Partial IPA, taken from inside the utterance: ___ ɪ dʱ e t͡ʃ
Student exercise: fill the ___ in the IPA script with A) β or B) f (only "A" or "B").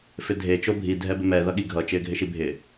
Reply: B